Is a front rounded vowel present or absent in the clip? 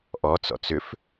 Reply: present